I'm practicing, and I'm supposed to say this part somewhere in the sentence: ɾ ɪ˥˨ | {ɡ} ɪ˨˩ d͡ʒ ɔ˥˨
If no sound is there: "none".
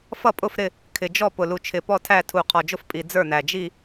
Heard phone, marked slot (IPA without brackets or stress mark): kʰ